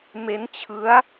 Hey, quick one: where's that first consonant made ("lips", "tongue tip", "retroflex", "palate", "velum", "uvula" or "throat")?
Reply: lips